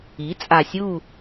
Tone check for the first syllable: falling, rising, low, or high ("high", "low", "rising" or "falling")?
rising